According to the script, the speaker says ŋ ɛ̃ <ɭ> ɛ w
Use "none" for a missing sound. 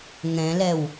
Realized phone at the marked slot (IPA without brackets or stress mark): l